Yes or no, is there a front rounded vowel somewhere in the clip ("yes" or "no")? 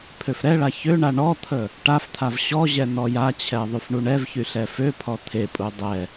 yes